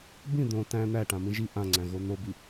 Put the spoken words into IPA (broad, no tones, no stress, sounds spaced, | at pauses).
b ĩ d̪ õ t æ̃ n̪ æ ʈ ã m ĩ ʒ i ʔ ã ŋ͡ǀ æ̃ ɣ o n̪ o b i